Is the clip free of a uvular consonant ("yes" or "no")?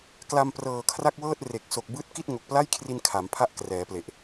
yes